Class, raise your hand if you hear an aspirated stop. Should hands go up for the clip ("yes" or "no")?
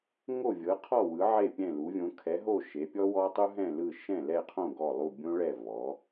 yes